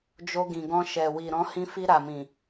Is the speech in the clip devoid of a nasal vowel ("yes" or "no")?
no